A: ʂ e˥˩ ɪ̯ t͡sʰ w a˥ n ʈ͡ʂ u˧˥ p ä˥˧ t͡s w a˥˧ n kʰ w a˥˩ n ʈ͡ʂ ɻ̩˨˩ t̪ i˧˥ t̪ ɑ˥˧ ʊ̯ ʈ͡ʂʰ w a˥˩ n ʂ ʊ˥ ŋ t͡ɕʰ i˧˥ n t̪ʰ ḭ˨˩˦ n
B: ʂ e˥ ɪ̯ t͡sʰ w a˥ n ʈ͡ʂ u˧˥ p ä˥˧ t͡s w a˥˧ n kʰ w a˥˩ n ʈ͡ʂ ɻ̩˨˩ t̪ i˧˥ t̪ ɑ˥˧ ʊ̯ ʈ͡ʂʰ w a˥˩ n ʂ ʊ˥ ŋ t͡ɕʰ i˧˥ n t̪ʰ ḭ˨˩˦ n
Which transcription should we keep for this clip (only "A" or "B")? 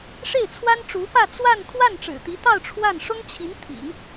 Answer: A